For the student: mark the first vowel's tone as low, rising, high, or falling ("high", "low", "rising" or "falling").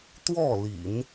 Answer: falling